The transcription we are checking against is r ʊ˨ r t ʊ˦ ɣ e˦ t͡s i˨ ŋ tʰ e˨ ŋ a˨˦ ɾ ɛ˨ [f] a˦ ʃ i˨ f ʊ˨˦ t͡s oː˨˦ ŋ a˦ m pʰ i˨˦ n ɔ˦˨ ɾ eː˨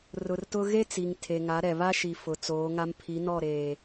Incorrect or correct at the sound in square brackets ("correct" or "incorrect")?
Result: incorrect